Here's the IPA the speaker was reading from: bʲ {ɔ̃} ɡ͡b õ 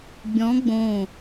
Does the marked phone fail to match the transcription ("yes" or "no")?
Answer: no